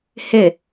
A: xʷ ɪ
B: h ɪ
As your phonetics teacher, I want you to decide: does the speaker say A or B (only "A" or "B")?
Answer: B